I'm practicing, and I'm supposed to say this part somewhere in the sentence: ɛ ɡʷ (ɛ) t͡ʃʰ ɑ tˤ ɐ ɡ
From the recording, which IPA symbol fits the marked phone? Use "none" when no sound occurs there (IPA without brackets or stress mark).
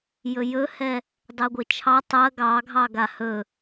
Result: ɘ